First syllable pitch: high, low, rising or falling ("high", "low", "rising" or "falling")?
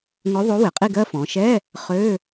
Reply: rising